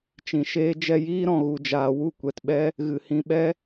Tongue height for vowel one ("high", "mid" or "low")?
high